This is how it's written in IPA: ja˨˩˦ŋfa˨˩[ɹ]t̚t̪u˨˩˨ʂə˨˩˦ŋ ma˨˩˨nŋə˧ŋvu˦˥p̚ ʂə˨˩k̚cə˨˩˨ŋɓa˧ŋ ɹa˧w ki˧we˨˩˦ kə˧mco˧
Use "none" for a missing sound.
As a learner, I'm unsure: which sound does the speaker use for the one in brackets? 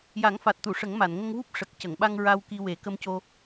none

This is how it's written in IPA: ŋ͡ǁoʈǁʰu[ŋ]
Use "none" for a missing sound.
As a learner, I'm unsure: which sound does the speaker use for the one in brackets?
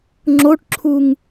ŋ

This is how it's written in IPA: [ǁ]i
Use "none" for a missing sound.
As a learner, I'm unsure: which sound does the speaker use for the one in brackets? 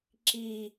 ǁ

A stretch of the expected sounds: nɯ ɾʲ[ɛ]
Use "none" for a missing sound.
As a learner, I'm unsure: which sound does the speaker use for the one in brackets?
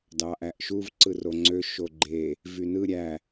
æ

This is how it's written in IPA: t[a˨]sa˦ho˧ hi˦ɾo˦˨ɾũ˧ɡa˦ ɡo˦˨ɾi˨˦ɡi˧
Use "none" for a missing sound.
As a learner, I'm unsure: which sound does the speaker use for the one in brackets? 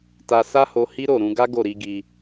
a˧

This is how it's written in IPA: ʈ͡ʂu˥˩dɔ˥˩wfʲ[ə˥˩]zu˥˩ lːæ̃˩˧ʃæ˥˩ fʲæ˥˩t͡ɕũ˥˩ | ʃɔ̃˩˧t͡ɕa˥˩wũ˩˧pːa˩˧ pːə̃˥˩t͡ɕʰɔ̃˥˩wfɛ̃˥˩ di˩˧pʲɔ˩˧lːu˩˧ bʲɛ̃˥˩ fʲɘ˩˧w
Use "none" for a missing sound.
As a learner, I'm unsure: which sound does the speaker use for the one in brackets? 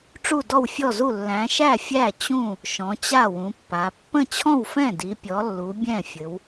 ɔ˥˩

